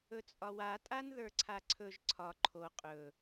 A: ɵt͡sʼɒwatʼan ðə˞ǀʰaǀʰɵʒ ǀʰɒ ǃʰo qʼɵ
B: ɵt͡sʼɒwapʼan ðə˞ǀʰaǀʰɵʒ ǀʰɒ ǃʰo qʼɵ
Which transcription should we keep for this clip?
A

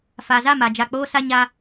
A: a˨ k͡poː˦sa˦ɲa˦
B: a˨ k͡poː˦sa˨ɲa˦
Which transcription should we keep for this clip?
A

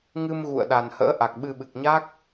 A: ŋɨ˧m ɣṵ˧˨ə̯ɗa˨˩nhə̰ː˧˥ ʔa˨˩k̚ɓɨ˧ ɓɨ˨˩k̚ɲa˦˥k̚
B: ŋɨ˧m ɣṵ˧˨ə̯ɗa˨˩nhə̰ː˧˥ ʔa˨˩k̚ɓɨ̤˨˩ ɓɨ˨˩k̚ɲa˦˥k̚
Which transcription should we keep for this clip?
A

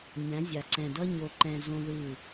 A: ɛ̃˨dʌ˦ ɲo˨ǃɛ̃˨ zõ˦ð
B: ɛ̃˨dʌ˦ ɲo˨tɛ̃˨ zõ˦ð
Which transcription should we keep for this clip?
A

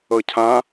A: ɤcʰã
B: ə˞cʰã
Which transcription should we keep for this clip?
A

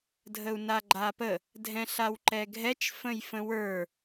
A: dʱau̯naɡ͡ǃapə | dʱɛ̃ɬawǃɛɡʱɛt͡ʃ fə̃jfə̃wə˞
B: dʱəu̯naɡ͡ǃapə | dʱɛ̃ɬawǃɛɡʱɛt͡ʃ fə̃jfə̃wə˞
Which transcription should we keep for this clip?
B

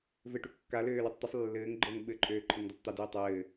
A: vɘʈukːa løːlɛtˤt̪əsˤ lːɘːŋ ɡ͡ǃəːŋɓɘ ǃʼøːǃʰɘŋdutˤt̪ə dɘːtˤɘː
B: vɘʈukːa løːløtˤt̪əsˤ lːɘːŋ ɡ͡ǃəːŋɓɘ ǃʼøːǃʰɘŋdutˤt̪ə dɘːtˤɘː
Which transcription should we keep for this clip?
B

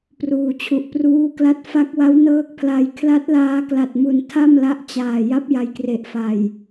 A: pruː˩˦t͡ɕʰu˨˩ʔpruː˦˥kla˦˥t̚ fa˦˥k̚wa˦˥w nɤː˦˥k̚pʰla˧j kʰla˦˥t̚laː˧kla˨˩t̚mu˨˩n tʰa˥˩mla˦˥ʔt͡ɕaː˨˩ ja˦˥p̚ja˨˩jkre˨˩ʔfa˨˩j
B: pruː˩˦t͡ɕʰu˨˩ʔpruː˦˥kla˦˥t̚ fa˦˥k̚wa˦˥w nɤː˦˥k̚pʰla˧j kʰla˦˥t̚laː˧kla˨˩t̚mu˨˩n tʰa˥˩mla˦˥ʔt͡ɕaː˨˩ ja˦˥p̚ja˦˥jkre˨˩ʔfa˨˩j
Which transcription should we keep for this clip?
A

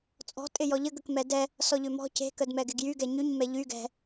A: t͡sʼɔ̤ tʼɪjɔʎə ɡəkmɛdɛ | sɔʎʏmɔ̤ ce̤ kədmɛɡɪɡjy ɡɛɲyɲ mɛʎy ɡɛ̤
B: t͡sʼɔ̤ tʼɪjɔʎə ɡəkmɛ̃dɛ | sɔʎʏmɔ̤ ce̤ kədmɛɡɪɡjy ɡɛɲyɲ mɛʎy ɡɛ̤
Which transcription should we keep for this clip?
A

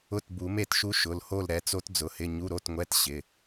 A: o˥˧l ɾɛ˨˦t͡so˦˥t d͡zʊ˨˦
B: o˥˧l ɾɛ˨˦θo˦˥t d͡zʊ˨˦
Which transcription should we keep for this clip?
A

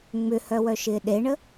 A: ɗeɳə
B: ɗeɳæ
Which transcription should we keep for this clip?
A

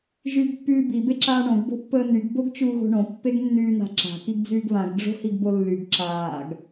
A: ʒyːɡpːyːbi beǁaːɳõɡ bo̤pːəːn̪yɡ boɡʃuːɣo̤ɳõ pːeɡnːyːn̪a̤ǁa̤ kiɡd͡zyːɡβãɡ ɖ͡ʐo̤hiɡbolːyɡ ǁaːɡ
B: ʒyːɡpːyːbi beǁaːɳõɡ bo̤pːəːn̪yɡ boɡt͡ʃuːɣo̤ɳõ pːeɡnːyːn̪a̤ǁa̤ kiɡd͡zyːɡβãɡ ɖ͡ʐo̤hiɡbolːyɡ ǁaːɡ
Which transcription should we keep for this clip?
B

